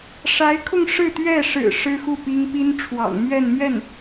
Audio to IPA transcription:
ʂ a˧˥ ɪ̯ kʰ ʊ˥˧ ŋ ʂ ɻ̩˥˧ t̪ ɥ ɛ˥˩ ʂ ɻ̩˨˩ ʂ ɻ̩˥ x u˥˩ p i˥ ŋ p i˥ n ʈ͡ʂʰ w ɑ̰˨˩ ŋ m ɥ ɛ˥˧ n m ɥ ɛ˥˩ n

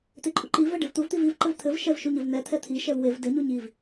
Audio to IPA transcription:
t̪ e ǃʼ u ǃ i v ɛ ɖ e v t̪ u v t̪ i v i v ǃ ɘ v t̪ʰ ɘ v ʃ ɛ v ʃ u ɲ ɘ v n̪ ɛ t̪ʰ ɛ t̪ʰ i ʃ ɛ v w e v d ɘ ɲ u ɲ i v

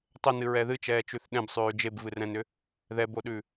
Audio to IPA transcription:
tˤ ʏ n ɨ ɹ ɛ ð ɨ t͡ʃ ɛː t͡ʃ ʉ θ ɗ ɛ̃ b sˤ ʉː d͡ʒ e b v ɨ r ɛ̃ n ʏ | ð ɛ b o ɗ ʉ

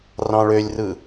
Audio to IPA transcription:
r ɑ̃ ɭ ø lʲ r ɯ

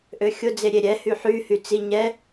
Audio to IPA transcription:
ʔ ø xʲ ʊ d͡z e ɾʲ e ɾʲ ɛ h y ħ y h y t͡s i ɲ ɛ

